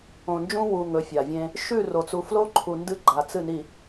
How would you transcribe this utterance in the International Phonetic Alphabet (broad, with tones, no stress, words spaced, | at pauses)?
õ˨nd͡ʒũ˦ wu˨ ŋɵ˨˦fʲa˨vʲẽ˦ | ʃʉ˦˨ro˨t͡su˨ flo˦ǃʰu˨ ndɨ˦ɡ͡ǃa˨t͡sɨ˦˨ni˨